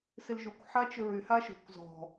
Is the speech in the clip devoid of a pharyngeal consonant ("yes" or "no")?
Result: no